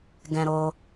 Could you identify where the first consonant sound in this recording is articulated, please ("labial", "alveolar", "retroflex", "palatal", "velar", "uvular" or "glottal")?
velar